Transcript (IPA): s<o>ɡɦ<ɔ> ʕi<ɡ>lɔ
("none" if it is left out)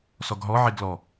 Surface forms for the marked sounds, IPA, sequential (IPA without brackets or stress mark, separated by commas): ɔ, ɔ, ɡ